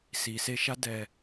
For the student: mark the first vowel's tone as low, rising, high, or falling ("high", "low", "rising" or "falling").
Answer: low